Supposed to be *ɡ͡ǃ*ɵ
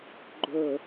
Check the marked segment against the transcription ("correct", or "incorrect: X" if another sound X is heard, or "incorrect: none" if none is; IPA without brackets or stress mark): correct